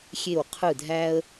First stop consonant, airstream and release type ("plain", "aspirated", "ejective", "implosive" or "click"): aspirated